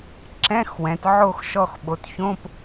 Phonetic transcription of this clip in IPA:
ǁ ɛ̃˧˥˧ x w ɛ̃˩˧ t ʕ o˦˨ x ʃ ɔ˦˨ x ɓ o˩˧ t ç õ˧˥˧ p

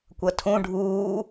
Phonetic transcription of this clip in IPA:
kʷ ʌ tʰ ũ ɖʱ uː

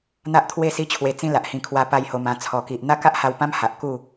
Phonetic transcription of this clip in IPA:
n̪ a˦ ʔ t̪ʰ w e˥˧ s i˦ t͡ɕʰ w e˧ t͡s ĩ˧ l a˨ ʔ h ĩ˧ kʰ w a˧ p a˧ j h o˧ m ã˧ t͡sʰ ɔ˨˩ k i˨ ʔ n̪ a˦ k a˦ ʔ h a˧ w p ã˦ m h a˨ ʔ k u˥˧

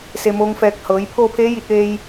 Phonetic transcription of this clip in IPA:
s e˧ m oː˧˥ ŋ f ɛː˧ k̚ h ɤː˩˧ j pʰ oː˥˨ pʰ eː˧˥ j i˧ t̚ ʋ eː˧ j

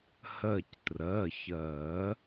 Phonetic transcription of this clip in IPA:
h ɜ˧˩ c t r ɜ˩˧˩ ç ɜ˨˩˦

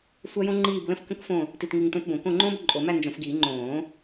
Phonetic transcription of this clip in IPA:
sʷ æ˥ j õ˥ ŋ͡ǃ iː˥˧ b l ə̃˥ f k ə̃˥ k f õ˥˧ | t i˥˧ t ŋ i˥˧ ŋ t õ˥ t b õ˨˩˦ k õ˥˧ ŋ͡ǃ õː˥ b ǃʼ o˨˩˦ m æ˥˧ n d͡ʒ õ˨˩˦ f ɡ iː˨˩˦ ŋ͡ǃ õː˨˩˦

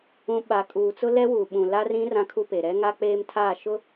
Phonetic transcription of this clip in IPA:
ũ˨ ɓ a˨ kʼ uː˨ t͡s ʊ˦ l ɛ˦ w uː˨ ɓ ũ˨ l a˦ r ĩ˦ r ã˦ kʰ u˦ p e˨ ɾ ɛ˦ ŋ a˦ k͡p eː˦ m tʰ aː˦˨ ʃ ʊ˦

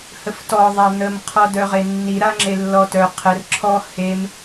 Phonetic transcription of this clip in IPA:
h ə f t ɔ ðˤ a n̪ ə m qʰ ɔ d œ ʁ e nː i ɾ a ŋ͡ǁ e lː ɔ t œ qʰ ə r ǁʰ ɔ h e m

